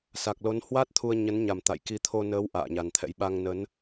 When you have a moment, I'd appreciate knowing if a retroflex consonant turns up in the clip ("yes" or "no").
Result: no